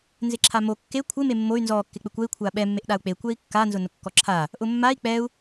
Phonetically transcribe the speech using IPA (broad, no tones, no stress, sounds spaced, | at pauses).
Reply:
n z ɪ ǁʰ a m o kː e kʷʰ ɪ m e mː o y̯ n z ɔ kː ɪ k͡p ɪ kʷ ɛ i̯ kʷʰ a ɓ ɛ mː e ʔ ɗ a u̯ k͡p e kʷ ɛ i̯ kː a n z ʊ n ʊ kː ɔ ǁʰ a | ʔ ʊ mː a i̯ k͡p ɛ u̯